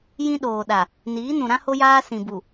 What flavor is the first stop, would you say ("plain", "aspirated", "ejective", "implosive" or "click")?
implosive